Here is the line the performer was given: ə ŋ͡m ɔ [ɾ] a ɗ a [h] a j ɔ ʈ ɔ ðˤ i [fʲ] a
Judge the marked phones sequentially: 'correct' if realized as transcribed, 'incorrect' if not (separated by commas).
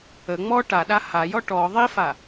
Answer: incorrect, correct, incorrect